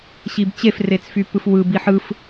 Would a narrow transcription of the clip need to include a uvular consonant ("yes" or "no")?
no